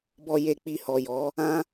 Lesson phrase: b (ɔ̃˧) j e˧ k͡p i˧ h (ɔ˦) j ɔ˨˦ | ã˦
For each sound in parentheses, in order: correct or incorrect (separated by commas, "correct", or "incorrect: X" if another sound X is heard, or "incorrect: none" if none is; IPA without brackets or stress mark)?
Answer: incorrect: ɔ˧, incorrect: ɔ˨